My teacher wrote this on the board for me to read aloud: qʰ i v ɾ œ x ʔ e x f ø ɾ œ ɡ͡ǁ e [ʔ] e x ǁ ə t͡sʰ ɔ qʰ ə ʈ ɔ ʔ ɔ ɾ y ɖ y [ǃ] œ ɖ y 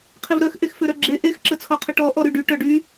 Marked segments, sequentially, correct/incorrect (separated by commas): correct, incorrect